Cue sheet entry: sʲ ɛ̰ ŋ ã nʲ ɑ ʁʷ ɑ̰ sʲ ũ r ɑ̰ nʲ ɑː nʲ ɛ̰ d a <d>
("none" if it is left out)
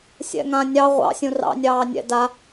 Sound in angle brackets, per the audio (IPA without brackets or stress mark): none